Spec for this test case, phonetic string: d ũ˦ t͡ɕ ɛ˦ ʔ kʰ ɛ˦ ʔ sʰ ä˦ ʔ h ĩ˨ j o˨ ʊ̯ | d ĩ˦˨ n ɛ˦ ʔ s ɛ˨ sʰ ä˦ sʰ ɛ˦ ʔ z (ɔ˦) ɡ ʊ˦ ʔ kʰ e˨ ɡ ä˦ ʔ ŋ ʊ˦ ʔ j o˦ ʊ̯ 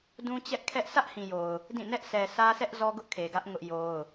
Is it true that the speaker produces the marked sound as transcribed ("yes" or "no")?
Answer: yes